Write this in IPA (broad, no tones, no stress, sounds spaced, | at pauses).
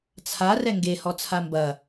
t͡sʰ a r ɛ ŋ ɡ e h ɔ t͡sʰ a m b ɐ